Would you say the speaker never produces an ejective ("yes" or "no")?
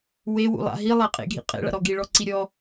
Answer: no